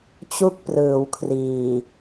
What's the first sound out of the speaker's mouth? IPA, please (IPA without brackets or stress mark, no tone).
t͡ɕ